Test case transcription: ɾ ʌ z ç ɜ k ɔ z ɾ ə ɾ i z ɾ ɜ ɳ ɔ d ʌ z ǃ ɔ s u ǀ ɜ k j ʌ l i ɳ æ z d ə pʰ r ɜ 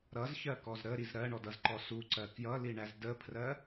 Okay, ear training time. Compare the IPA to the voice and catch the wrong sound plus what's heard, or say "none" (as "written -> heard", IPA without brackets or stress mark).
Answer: none